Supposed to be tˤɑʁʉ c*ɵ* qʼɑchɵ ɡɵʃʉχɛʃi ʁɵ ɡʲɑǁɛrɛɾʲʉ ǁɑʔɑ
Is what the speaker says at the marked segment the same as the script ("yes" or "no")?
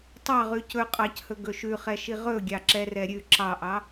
yes